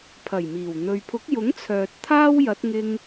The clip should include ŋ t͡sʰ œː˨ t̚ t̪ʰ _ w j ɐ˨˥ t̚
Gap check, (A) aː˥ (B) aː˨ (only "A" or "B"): A